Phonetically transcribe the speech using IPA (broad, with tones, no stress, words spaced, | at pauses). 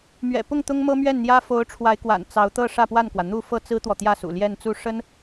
mɥɛ̰˨˩pʊ˥˩ŋ t̪ʊ˥ŋmɤ˥mɥɛ˥˩nn̪jä˥ fo˧˥ʊ̯ʈ͡ʂʰwa˧˥ɪ̯kwa̰˨˩n t͡sɑ˧˥ʊ̯t̪ɤ˥˧ ʂä˥˧pwa˥˩nkwä˩ n̪u˥˧ fɤ˥˩t͡sɹ̩˥t̪wɔ˨t̪jä˥˩ sṵ˨˩ ljɛ˥˧nt͡su˥˩ ʂə˥n